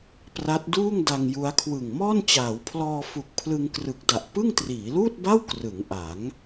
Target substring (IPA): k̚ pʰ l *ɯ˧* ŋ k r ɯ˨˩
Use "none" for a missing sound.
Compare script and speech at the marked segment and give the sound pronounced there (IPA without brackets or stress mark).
ɯ˧